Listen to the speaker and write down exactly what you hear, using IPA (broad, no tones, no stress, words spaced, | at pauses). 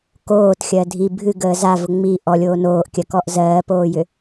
koːtxʲɜ dʱi bʱɨɡəː zavʊ ŋ͡mi ʔɔlʲoː noːʔkʲɜkɔʔ zɜːpoːjʏ